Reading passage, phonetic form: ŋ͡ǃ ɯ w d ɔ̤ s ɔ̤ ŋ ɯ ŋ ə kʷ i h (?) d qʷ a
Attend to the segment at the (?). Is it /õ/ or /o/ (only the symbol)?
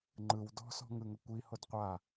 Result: o